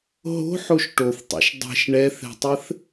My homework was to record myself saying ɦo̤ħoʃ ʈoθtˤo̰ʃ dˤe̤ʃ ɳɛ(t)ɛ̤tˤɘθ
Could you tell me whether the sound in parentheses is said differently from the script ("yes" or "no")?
yes